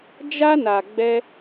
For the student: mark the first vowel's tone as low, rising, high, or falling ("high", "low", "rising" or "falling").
high